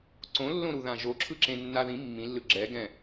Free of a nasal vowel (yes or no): no